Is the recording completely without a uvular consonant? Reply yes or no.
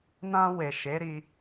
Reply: yes